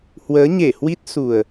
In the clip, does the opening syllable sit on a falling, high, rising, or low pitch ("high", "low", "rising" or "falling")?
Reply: rising